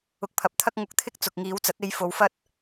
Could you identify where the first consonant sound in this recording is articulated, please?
velar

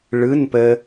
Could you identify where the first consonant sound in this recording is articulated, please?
retroflex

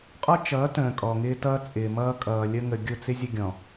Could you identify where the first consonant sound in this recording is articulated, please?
uvular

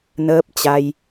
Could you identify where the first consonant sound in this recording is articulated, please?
alveolar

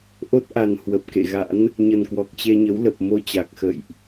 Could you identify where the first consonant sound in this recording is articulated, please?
glottal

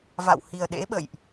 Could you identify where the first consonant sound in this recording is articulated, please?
labial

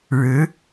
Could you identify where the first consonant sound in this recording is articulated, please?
retroflex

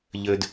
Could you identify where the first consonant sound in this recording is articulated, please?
palatal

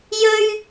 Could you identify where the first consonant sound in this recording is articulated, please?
palatal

